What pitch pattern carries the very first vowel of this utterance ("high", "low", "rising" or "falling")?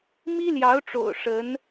high